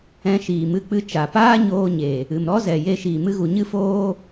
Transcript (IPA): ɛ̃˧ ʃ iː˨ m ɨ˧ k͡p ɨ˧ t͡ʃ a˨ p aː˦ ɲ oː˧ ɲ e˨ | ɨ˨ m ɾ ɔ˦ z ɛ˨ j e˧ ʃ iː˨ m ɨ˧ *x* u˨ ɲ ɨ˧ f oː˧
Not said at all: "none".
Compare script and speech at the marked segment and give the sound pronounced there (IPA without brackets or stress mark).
ɣ